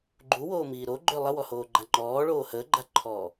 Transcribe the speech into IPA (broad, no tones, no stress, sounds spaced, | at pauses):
ɡ͡ǃ u w oː m iː ɾ o ɡ͡ǃ ø lˠ ə w ɔ h oː ɡ͡ǃ a ŋ͡ǃ ɔː ɭ oː h əː ɡ͡ǃ a ǃʰ ɔː